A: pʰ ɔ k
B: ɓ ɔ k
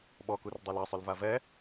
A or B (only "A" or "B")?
B